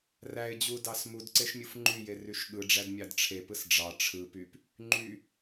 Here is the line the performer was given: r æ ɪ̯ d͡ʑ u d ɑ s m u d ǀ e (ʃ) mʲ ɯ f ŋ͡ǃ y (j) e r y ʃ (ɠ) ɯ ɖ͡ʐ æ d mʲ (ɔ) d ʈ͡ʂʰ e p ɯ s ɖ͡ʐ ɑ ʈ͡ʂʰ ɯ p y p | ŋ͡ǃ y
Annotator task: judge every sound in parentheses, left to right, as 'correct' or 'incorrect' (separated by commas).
correct, correct, correct, incorrect